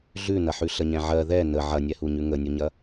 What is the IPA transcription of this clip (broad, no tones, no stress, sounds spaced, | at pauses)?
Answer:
ɮ ʉ n ɐ ħ ʉ ɬ ə ɲ ɛ̃ ʕ ɜ ð ɛ n ə ʕ ɐ nʲ ɛ h u ɲ ʉ ŋ ə nʲ u ɲ ɐ